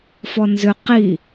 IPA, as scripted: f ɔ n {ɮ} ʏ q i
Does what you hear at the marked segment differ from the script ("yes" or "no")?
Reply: yes